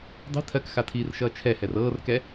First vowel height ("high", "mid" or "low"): high